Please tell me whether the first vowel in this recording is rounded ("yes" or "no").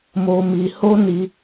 yes